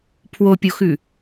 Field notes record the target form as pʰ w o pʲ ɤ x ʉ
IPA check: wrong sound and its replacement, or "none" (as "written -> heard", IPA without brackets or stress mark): ɤ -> o